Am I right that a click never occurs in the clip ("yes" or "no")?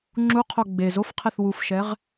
no